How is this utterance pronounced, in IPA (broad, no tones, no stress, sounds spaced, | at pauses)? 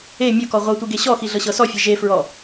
e mʲ o k ɔ ʁʷ ɤ tʷ i ɡ e ɕ ɔ x i ɮ ɤ ɕ ɤ s ɔ fʲ e ʒ e f ɹ ɔ